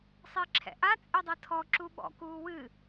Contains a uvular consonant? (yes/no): no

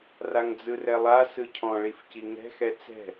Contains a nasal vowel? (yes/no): yes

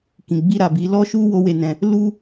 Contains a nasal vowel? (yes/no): yes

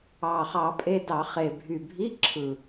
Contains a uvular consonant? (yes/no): yes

